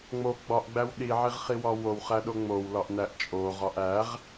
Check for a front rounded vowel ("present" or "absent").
absent